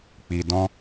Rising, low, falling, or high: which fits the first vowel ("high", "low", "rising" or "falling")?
low